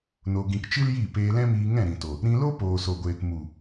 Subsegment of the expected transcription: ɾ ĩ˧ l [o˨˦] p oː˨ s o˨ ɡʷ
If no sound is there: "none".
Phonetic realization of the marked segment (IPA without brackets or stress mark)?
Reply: o˦